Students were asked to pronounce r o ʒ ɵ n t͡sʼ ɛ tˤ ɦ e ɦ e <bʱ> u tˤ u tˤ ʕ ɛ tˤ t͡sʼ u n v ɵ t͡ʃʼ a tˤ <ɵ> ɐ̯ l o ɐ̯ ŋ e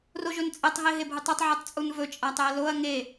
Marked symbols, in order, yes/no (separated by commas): yes, yes